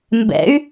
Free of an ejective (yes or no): yes